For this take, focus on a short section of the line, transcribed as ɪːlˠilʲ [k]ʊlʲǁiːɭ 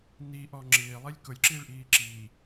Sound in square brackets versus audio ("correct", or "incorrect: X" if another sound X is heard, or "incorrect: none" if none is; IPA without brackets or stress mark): correct